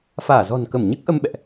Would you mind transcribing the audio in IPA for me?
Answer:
f aː˧˩ z ɔ̤˨˩ n k ə˧˩ m ɲ ɨ˦˥ k̚ ʔ ə˧ m ɓ ɛ̰˧˨ ʔ

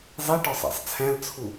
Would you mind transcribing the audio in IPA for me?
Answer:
zˤ i ʈ ɒ sˤ æ̰ sˤ t͡sʰ æ̃ l t͡sʰ u

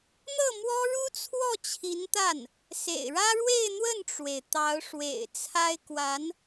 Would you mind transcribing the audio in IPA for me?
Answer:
n̪ ɤ˥˩ m w ɔ˥ ɻ u˥ t͡sʰ w ɔ˥˩ t͡ɕʰ i˧˥ n t̪ a˥˩ n | s ḛ˨˩ ɪ̯ ɻ ä˥ ɻ w e˥˧ ɪ̯ n̪ w ə˥˩ n ʈ͡ʂ w e˩ ɪ̯ t̪ ɑ˧˥ ʊ̯ ʂ w ḛ˨˩ ɪ̯ t͡sʰ a˥ ɪ̯ k w a˧˥ n

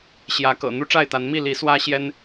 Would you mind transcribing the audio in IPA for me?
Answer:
ɕ j ä˨˦ k ɤ̰˨˩ n̪ u˦ ʈ͡ʂ a˥˨ ɪ̯ t̪ a˨˦ n m i˥˨ l i˨˦ s w ä˦ ɕ j ɛ˦ n

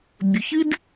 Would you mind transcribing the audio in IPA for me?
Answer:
bʲ ɵ˨ ç ɨ˦ d

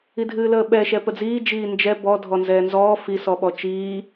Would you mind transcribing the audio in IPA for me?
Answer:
i dʱ ɨː l əː ɓ ɛ ʃ ɛ p ə d͡z iː d͡ʒ iː n d͡ʒ ɛ b ɔ dʱ ɔ n z ɛː n z ɔː f i s ɔ ɓ ɔ t͡ʃ iː

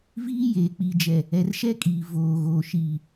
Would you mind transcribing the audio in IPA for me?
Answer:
v iː˦ j eː˨ k͡p i˨ d͡ʒ ɛ˨ | ɛ˨ r ʃ ɛ˦ kʼ iː˨ v oː˨ ɣ oː˨ ʃ iː˨

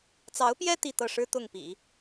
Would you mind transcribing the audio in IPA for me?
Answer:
t͡s ɑ˧˥ ʊ̯ p j ɛ˥ t̪ i˥˧ t̪ ɤ˥˩ ʂ ɻ̩˥ t̪ ʊ˥˩ ŋ p ḭ˨˩˦

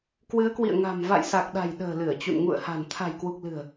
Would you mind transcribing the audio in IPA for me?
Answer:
k w ɨ˨˦ ə̯ k w ḭ˧˨ ə̯ ŋ a̤˨˩ m v a̰˧˨ j s a˨˩ k̚ ɗ a̤˨˩ j ɗ ə̤ː˨˩ l ɨ˧˩ ə̯ t͡ɕ ṵ˧˨ n ŋ ṵ˧˨ ə̯ h a̤˨˩ n t̪ʰ a̤˨˩ j k w u˨˩ k̚ l ɨ̤˨˩ ə̯

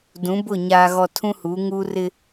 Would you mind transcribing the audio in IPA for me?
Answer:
d ũ˨˦ b ʊ˦˨ ɲ aː˨ ɣ ɔ˨ tʰ ũ˦ h uː˨˦ ŋ uː˦ r ɪ˦

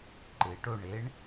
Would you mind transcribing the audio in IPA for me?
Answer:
ǃ ɪ ʈ o ɳ e ɳ

